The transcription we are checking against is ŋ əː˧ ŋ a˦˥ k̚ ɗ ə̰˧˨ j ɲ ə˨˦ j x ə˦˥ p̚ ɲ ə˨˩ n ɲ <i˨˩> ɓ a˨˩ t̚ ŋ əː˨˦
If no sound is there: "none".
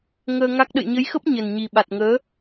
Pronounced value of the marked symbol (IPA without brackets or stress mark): i˨˩